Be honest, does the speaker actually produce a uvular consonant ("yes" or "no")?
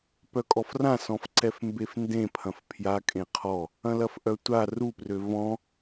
yes